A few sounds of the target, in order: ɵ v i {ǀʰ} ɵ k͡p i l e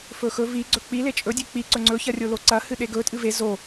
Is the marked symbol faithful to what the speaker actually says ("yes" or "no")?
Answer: no